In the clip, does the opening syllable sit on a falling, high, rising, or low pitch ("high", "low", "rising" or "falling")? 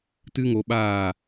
high